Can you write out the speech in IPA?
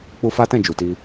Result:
k͡p u˦ f a˦ t ɛ̃˦˨ d͡ʒ u˨ t i˧

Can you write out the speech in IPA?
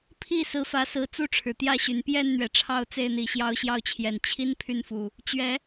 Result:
pʰ i˥˨ s ɹ̩˨˦ f ä˨˦ s ɹ̩˨˩ t͡s u˥˨ ʈ͡ʂʰ ɻ̩˩ t̪ j ä˥˨ ɕ y˨˩ n p j ɛ˥˨ n n̪ ɥ ɛ˩ ʈ͡ʂʰ ɑ˥˨ ʊ̯ t͡s e˥˨ ɪ̯ n̪ i˨˩ ɕ j ɑ˦ ʊ̯ ɕ j ɑ˥˨ ʊ̯ t͡ɕʰ j ɛ˨˩ n t͡ɕʰ i˦ n pʰ y˥˨ n f u˨˩ | t͡ɕ ɥ ɛ˨˦

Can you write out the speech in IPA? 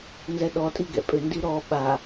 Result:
n z ɛ ɗ ɔ tʼ i ɡ ɛ̰ pʼ ʏ n d i ɾ ɔ ɓ a

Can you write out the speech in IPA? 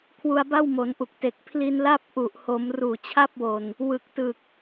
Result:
kʰ w u˧ a̯ b a˥˩ w m o˩˦ n ʔ u˨˩ k̚ t e˨˩ k̚ pʰ l i˧ n l a˥˩ p̚ ʔ u˨˩ ʔ h o˩˦ m r uː˨˩ t͡ɕʰ a˥˩ p̚ w o˨˩ n | w ɯ˨˩ k̚ t ɯ˨˩ k̚

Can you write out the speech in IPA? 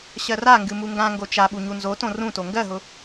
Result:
ɕ ɜ r a ŋ ɡ ɨ m u ŋ ɡ ã ŋ ɡ o t͡ʃ a ɓ u ɲ u n z o t õ r ũ t o ŋ ɡ ɜ ɦ ʊ

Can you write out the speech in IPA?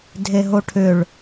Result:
dʱ e ɦ o ʈʰ ʏ ɭ

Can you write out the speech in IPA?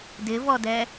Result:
d ɪ v ɔ d ɛ

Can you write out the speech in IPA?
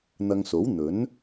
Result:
n̪ ɐ˧ ŋ s o˨˥ w n̪ ɵ˨˥ n

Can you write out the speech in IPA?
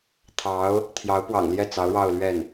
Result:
t̪ʰ ɑ˧˥ ʊ̯ | t̪ʰ j ɑ˧˥ ʊ̯ p w ɑ̰˨˩ ŋ l j ɛ˥˩ t͡s ɑ˧˥ ʊ̯ ɻ ɑ˥˧ ʊ̯ l ɥ ɛ˥˩ n

